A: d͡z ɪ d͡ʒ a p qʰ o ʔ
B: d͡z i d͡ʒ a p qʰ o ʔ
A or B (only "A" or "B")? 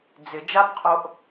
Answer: A